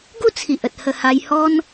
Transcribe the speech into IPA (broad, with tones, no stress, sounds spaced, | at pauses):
ɡ u˥˧ t͡sʰ i˨ ʔ ə˨ t̚ h ə˧ h a˧ j h ɔ˦ n